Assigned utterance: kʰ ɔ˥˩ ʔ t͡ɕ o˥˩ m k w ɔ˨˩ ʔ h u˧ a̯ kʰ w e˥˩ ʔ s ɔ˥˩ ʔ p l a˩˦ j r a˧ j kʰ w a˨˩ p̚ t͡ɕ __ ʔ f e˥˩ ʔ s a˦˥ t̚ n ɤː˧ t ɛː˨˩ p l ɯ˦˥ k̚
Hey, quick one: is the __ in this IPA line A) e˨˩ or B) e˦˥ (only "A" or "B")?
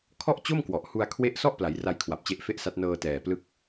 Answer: B